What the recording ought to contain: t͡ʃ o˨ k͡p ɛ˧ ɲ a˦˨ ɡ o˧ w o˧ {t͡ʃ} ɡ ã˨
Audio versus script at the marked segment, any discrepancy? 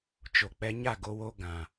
yes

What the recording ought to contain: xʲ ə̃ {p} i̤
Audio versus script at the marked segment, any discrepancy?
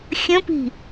no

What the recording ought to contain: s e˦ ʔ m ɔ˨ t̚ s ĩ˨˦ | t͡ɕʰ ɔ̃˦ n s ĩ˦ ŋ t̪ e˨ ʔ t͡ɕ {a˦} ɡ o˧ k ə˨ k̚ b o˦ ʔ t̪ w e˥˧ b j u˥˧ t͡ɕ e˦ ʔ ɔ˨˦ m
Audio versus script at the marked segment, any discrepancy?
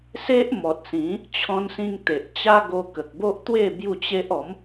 no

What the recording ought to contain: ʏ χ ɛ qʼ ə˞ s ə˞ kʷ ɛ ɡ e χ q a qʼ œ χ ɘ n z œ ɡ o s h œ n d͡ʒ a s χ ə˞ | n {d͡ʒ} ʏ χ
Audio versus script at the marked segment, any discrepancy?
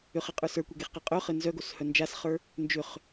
no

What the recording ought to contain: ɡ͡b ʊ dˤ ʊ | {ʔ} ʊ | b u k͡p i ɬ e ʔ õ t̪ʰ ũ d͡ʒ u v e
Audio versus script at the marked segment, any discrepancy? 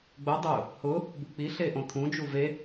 yes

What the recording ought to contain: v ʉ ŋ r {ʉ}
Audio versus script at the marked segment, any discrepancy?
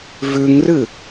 yes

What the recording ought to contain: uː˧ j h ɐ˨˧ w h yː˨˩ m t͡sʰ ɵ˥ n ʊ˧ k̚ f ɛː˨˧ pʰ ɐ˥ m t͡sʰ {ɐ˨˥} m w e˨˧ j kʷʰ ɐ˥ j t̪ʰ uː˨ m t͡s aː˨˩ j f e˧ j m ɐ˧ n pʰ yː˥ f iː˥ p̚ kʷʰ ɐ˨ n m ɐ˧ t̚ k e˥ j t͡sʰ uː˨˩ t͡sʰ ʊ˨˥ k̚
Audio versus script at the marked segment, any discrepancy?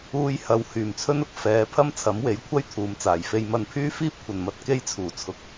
no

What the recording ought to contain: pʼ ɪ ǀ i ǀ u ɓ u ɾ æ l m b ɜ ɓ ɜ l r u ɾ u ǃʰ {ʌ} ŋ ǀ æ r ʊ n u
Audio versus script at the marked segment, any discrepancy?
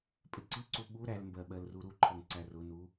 no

